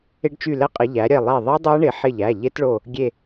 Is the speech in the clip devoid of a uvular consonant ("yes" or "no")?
no